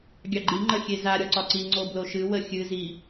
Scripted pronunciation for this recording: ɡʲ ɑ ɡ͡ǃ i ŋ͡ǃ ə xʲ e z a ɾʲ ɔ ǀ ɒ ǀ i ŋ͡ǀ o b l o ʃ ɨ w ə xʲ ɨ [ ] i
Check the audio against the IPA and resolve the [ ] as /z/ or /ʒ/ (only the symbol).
z